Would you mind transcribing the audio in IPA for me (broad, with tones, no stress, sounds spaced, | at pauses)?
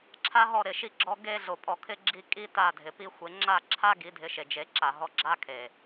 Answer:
ǁʰ a˦ ɦ ɔ˦˨ ɾ ɪ˨ ʃ i˧ ɡ͡ǁ ɔ˧ ɡ e˧ ɮ o˨ pʼ ɔ˨ kʰ ɪ˧ ɡ͡ǁ i˧ kʼ i˦ t a˦˨ dʱ ɪ˨ p i˧ xʷ e˨˦ ŋ͡ǁ a˦˨ ǁʰ a˦ ɡ i˨˦ dʱ ɪ˧ ʃ e˨ d͡ʒ e˨˦ ǁ a˨ ɦ ɔ˧ ɡ͡ǁ a˦ kʰ e˨